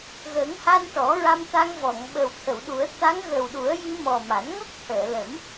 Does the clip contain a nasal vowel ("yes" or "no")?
no